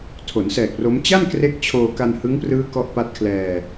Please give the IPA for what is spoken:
tʰ o˩˦ n s ɛː˨˩ k̚ r o˦˥ m t͡ɕ a˥˩ n k r e˦˥ k̚ t͡ɕʰ oː˧ k a˧ n h ɯ˦˥ ŋ p r ɯː˦˥ k ɔ˦˥ ʔ p a˦˥ t̚ kʰ l ɛː˧

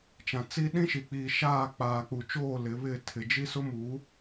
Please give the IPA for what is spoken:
t͡ʃ ã˨ t͡s i˦ ɗ ĩ˦ ʃ i˨ k͡p iː˨ ʃ aː˦˨ k͡p aː˨ k͡p u˨ t͡ʃ oː˦˨ l ɪ˨˦ β ɪ˦˨ tʰ ɪ˨ d͡ʒ i˦ s ʊ˦ m u˨˦

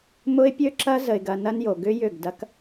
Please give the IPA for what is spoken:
m ʊ˦ ɪ̯ pʲ ø˦ ǁ ɐ˦ z ə˨ ɪ̯ ɡ ɐ˨ n ɐ˦ n j o˨ ɡ ʏ˦ j ʏ˦˨ ɡ d ɐ˦ k

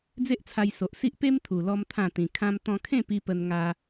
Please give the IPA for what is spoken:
d͡z e˦ ʔ t͡sʰ a˧ j s o˨ ʔ s i˦ ʔ p e˦ m t̪ʰ u˨˩ l ɔ˦ m t̪ʰ ã˥˧ t̪ ĩ˧ kʰ ã˦ m t̪ ɔ̃˧ kʰ ẽ˥˧ p i˧ p ə˧ n ŋ a˦

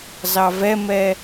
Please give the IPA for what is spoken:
z ɑ v ɛ m ɛ

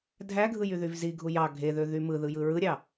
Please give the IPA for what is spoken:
dʱ æ ɡʱ ɯ j y ð y v z i ɡʱ u j ɑ ɡʱ e ð ø ð y m ɯ ð ɯ j ɯ ɹ ɯ ɾʲ ɑ

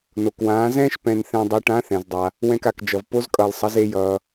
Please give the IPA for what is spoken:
n o˩ k w ãː˩˧ z ɛ̃ː˥ ʃ p ɛ̃˧ n θ ɛ̃˧ dˤ e˧˥ ʈ ã˧˥ θ ɛ̃˩ z dˤ a˩ | w ɛ̃˧ k a˩ k d͡ʒ ʌ˩ v p o˧˥ z kʼ ʌː˩ l sˤ ʌ˩˧ z e˧ j ʌː˩

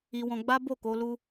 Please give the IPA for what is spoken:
i˧ w ɔ̃˧ ɡ͡b a˦ b o˦˨ k o˧ l u˧

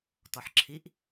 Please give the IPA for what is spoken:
t ɔ ħ ǁʰ i ʔ

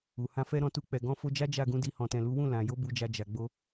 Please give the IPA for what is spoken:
u˨ h ã˧ f ɛ˧ ɾ ɔ̃˧ t u˧ k͡p ɛ˨ ɡ ɔ̃˧ f o˧ d͡ʒ a˦ d͡ʒ a˦˨ ɡ ũ˨˦ d i˧ h ɔ̃˨ t ɛ̃˨ l u˨˦ w ũ˦˨ l ã˨ j o˨˦ b u˧ d͡ʒ a˧ d͡ʒ a˨ ɡ͡b o˧

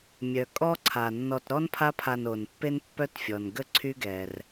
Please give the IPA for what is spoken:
mʲ œ˩ kʼ ɔ˦ ǀʰ a˩ nː ɔ˨ t ɾ ɔ˥ n pʰ a˦ pʰ a˨ n o˩ n pː e˦ n pː œ˦ t fʲ ɔ˩ n ɡ ə˥ ǀʰ y˦ ɡ ɛ˩ r

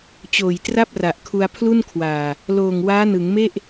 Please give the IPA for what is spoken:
t͡ɕ oː˨˩ j t r a˥˩ p̚ r a˨˩ ʔ kʰ u˧ a̯ pʰ l u˥˩ n kʰ w aː˨˩ | l oː˨˩ ŋ w aː˦˥ n ɯ˩˦ ŋ m e˥˩ ʔ

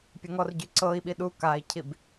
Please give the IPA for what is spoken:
pʲ ɘ ŋ ɔ r ɟ y ǀ ɤ i̯ ɓ i ɗ u k a i̯ cʰ i b

